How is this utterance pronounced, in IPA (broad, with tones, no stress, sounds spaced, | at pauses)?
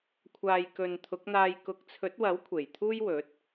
kʷʰ aː˧ j k ɵ˨ n t̪ʰ ʊ˨˥ k̚ n̪ aː˧ j k ʊ˨˥ k̚ t͡sʰ ɵ˨˥ t̚ w ɐ˨˥ w kʷʰ e˨˩ j t̪ʰ uː˥ j w ɵ˨˥ t̚